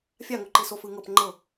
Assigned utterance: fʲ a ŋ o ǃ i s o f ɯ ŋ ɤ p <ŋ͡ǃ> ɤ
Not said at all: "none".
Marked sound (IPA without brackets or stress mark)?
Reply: ŋ͡ǃ